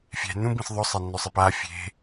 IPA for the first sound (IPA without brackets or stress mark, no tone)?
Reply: fʲ